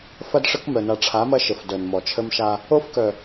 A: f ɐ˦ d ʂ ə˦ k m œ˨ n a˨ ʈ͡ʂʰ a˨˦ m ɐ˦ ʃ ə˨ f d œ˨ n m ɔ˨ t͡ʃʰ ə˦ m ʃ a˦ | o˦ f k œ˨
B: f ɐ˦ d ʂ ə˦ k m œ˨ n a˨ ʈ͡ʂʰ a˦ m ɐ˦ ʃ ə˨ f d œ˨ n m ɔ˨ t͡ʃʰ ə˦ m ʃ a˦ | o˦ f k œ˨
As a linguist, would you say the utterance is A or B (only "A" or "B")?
A